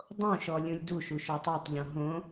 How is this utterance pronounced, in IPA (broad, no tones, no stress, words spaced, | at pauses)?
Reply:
dˤõʃɔ lʲũlʲduʃu ʃotˤotˤʎõ ɦõ